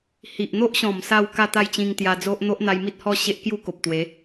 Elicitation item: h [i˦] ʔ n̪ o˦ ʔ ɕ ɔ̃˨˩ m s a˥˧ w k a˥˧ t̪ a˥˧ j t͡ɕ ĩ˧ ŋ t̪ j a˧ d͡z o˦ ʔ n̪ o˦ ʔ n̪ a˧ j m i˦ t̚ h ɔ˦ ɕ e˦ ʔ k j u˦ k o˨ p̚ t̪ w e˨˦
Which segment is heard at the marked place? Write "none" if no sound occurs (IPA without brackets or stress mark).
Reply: i˨